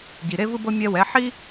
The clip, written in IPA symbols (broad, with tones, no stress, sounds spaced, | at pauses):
ɟ i˩ ɾ e˥ v ɯ˥ b ɤ˥ mʲ ɛ˧ w ɛ˩˥ ħ i˥